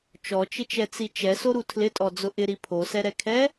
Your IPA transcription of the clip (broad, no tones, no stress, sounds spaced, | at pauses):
t͡ʃ ɔ t͡ʃ ɪ t͡ʃ ɛ t͡s i t͡ʃ ɛ s o ɾ u tʰ l ɪ tʼ ɔ d͡z ʊ ʔ ɪ ɾ i pʰ o s ɛ ɾ ɛ kʰ ɛ